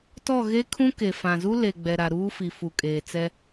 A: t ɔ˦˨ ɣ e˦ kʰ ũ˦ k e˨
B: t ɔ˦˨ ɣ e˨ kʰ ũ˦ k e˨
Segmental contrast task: A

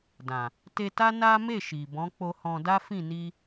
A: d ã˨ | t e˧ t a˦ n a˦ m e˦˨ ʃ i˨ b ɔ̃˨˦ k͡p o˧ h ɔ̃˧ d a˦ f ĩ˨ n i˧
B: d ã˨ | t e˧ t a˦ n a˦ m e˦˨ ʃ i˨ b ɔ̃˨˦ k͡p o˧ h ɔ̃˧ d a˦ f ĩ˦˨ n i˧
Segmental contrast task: B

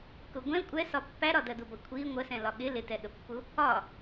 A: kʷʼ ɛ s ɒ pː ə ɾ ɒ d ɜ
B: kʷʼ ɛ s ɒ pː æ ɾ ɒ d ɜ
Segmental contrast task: B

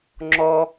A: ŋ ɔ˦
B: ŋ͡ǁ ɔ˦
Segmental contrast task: B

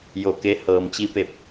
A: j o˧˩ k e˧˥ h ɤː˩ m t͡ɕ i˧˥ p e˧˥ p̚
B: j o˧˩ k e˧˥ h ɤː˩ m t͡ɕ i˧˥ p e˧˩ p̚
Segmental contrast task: B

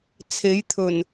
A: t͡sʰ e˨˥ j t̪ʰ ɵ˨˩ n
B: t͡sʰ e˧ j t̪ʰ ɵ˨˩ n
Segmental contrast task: A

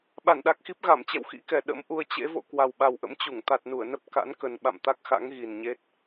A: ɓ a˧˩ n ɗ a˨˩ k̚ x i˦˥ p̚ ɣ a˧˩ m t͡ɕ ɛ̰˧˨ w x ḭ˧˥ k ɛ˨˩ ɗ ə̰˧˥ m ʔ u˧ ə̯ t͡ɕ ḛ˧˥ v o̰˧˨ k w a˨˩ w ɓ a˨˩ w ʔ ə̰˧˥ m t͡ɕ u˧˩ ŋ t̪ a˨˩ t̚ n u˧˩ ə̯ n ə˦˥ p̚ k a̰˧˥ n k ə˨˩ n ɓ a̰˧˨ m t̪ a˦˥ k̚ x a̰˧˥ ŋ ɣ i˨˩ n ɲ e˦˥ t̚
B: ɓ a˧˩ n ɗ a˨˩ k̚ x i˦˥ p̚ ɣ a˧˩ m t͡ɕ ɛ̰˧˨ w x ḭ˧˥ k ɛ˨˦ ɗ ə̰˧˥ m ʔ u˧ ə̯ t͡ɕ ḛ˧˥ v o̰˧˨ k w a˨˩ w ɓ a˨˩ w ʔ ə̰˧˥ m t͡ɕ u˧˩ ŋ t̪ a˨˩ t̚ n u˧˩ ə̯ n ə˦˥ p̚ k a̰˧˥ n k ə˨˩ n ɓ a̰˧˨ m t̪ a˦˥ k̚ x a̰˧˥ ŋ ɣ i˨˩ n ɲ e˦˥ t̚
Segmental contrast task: A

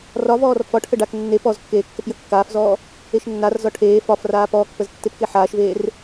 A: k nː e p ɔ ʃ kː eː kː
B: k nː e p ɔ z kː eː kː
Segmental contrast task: B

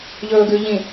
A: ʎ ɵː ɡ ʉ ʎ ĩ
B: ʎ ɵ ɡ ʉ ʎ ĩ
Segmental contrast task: A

